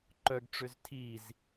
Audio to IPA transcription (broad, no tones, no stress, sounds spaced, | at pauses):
ǃ œ ɡ ʈ͡ʂ ø z tʰ i z